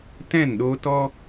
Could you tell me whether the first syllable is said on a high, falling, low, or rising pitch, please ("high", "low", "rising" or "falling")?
falling